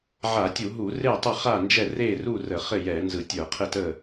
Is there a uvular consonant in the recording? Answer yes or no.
yes